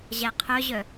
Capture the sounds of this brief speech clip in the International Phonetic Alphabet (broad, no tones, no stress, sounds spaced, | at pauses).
ʑ æ qʰ œ ʑ œ